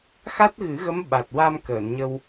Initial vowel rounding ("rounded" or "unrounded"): unrounded